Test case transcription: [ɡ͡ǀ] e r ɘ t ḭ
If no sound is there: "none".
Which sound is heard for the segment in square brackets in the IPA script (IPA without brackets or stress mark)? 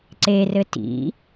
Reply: ǀ